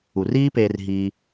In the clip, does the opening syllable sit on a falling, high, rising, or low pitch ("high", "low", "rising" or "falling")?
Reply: low